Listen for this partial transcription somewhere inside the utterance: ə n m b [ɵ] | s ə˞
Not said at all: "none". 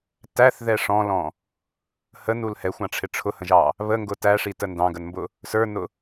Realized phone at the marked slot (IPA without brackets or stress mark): ʊ